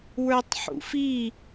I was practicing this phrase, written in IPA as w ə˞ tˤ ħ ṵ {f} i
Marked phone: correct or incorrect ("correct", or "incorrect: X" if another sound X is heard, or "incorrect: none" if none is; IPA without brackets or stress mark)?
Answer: correct